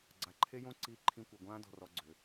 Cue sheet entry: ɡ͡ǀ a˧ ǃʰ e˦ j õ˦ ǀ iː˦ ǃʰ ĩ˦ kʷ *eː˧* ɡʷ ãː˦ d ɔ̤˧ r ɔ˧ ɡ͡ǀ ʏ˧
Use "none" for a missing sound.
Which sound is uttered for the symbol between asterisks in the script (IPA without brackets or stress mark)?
e˧